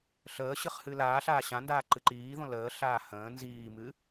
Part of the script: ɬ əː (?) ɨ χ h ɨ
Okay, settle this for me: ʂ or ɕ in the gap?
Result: ɕ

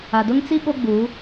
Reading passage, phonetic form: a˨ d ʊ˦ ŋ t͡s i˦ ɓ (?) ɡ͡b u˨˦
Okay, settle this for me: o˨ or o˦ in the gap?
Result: o˦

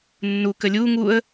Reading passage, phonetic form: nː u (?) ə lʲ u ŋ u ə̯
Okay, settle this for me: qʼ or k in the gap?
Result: k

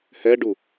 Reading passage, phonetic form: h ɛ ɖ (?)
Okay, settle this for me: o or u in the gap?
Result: u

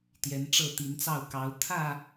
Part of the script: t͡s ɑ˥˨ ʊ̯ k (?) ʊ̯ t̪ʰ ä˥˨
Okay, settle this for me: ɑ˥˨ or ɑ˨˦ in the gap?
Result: ɑ˨˦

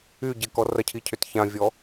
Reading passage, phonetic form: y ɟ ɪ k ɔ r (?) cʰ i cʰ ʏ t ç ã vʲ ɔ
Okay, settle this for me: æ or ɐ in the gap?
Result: ɐ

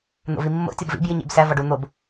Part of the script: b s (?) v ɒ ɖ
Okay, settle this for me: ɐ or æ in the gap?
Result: æ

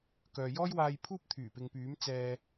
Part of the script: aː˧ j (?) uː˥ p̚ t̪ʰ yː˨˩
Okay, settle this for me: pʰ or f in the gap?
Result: pʰ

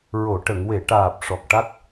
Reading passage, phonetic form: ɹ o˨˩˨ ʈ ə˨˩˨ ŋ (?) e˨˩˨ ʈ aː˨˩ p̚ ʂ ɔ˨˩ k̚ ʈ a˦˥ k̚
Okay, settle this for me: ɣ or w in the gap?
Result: w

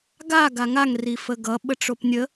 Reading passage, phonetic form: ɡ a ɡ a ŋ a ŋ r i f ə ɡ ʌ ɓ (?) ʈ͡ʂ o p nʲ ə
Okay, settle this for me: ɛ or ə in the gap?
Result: ə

